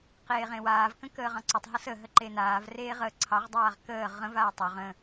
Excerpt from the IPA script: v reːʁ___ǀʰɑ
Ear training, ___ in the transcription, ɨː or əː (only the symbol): əː